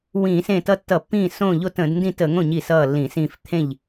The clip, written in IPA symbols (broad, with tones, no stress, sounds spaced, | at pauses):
w ĩː˧˩˧ s ẽ˥˩ t ʌ˥˩ tː ʌ˧˩˧ pː ĩː˥˩ s õ˥˩ ʎ o˥˩ t ə̃˧˩˧ d n d ĩ˥˩ t ə˧˩˧ ŋ õ˥˩ ɲ i˥˩ s ʌː˥˩ lː ĩ˧˩˧ s ĩː˥˩ f t̪ʰ ẽ˥˩ ʎ